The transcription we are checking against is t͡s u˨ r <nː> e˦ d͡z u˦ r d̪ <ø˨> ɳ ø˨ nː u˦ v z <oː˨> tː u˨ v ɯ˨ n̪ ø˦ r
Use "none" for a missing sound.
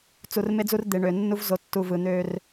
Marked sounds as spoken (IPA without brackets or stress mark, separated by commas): m, e˨, o˨